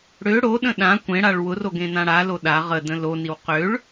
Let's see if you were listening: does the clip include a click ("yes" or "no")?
no